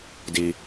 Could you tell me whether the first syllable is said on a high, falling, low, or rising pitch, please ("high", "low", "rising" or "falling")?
low